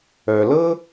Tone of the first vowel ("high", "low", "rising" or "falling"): low